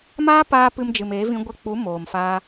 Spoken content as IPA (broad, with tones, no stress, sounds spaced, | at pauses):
m aː˦ p aː˧ p ɨ˧ m d͡ʒ ɨ˨ m eː˨˦ v ĩ˧ ɡʷ e˧ k͡p u˨˦ m oː˨ m f a˧